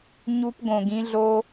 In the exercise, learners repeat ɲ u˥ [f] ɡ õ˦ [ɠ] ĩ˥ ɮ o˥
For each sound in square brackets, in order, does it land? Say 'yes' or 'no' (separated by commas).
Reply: no, no